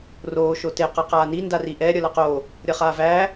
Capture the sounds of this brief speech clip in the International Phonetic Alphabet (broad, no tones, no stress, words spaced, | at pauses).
roː ʃote qʌqaːni ndariʔɛ ɾʲʌlɐqo | ɾʲʌχaːvæ